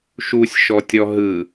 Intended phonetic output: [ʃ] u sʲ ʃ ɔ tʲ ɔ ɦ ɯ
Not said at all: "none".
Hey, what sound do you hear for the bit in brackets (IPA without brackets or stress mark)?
ʃ